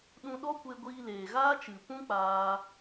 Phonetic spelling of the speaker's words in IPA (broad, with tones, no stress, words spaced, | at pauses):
ɗũ˧ɗɔ˦kʷe˧ ɡʷiː˧leː˨ɣaː˦t͡ʃɨ˨ pũ˦k͡paː˧